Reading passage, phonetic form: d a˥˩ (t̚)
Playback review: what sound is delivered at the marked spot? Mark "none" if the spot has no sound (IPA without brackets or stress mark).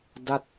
t̚